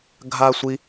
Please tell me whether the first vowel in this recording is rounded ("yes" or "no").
no